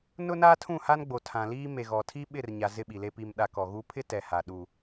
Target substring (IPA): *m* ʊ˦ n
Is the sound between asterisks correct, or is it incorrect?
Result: incorrect